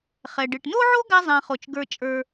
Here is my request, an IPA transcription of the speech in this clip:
χ ɛ˩ ɖ ɨ˩ ʈ n o˥ ʕ o˥ ɡ a˥ zˤ ã˨ χ o˩ t͡ʃ ɡ ə˞˨ t͡ʃʼ ə˞˨

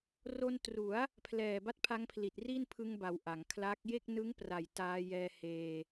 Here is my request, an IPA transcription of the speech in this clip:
r o˧ n t r u˩˦ a̯ | pʰ l ɛː˨˩ b a˦˥ t̚ pʰ a˦˥ ŋ pʰ l i˨˩ t̚ r i˥˩ n pʰ ɯ˧ ŋ b a˩˦ w ʔ a˩˦ ŋ kʰ l a˦˥ k̚ j e˥˩ k̚ n ɯ˦˥ ŋ p r a˨˩ j t aː˧ j ɛː˧ h eː˧

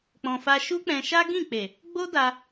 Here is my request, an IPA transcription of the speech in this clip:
k͡p ɔ̃˧ f a˦ ʃ u˦ k͡p ɛ̃˧ ʃ a˦ ɡ ĩ˦˨ k͡p e˨ | ɡ͡b o˦ d a˧

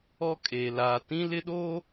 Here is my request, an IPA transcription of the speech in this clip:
ɔ˦ kʼ eː˨ l aː˨ t ĩ˦ l ɪ˦ ɗ oː˦

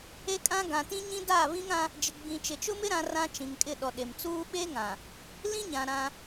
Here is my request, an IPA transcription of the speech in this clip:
e˦ kʼ ã˦ ɡ ã˨ t ĩ˦ ɲ ĩ˦ d a˦˨ β ĩ˦ ŋ ã˦ | d͡ʒ ɪ˨ ɡ͡b ĩ˨ t͡ʃ ɪ˨ t͡ʃ ʊ˦ m ɪ˦ ɾ ã˦ r ã˦ t͡ʃ ĩ˨ ŋ kʼ ɪ˦˨ ɗ ɔ˨ ɗ e˨ m t͡s uː˦ ɓ e˦ ŋ ã˨ | l ĩ˦ ɲ ã˨ ɾ ã˦

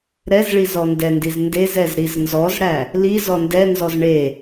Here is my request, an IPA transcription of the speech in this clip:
ɾ ɛ z ɭ i z ɔ n d ɛ n d i z n d e z ɛ z ɾ i z n z ɔ z ɽ æ | l i z ɔ n d ɛ n z ɔ z ɳ e

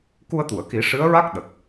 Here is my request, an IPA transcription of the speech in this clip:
k u˧ ə̯ t̪ u˨˩˨ ə̯ k i˨˩˦ ʂ ɨ˧˥ ə̯ ɹ a˦˥ k̚ ɗ ə˨˩ k̚

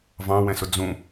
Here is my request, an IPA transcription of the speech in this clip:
v ɑ̃ w ɛ̃ s ʊ d͡z ũ

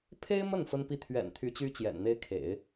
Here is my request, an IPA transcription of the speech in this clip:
pʰ e˥ ɪ̯ m ə˥˩ n f ə˥ n p i˥˩ t̪ʰ ɥ ɛ̰˨˩ n t̪ʰ y˧˥ t͡ɕ y˥ t͡ɕ j ɛ̰˨˩ n n̪ e˥ ɪ̯ kʰ ḛ˨˩˦ ɪ̯

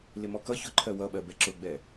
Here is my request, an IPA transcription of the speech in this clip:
l ɪ m ɔ k ʌ ç ʊ ǃʰ ɜ w ʌ ɓ ɜ b ɛ ǁ ʊ ɡ͡b ɛ

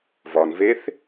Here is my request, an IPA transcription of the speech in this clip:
v ɒ n v e θ

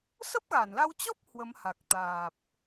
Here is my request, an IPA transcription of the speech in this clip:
s ə˦˥ p̚ ɣ a˧˩ n l a˧ w t͡ɕ ɔ˦˥ p̚ h w ə˨˦ m h a˨˩ k̚ t̪ aː˨˩ p̚

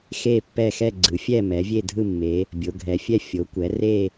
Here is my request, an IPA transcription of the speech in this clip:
x e˦˨ pː ɛ˦˨ x ɛ˦˨ ɡ͡ǀ ɯ˩˧ fʲ ɛ˦˨ m ɛ˩˧ vʲ e˦˨ dʱ ɯ˦˨ mː e˩˧ | bʲ o˩˧ ɡʱ ɛ˩˧ fʲ ɛ˦˨ fʲ o˩˧ kʷ ɛ˩˧ r e˦˨

